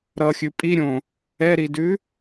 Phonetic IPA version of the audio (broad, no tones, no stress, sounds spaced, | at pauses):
ɾ ʌ xʲ ʉ pʼ i ɾʲ õ | ɛ ɾ i d ʉ